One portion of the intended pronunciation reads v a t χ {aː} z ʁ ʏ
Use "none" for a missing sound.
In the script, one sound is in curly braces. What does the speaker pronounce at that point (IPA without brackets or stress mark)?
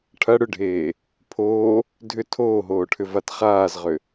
aː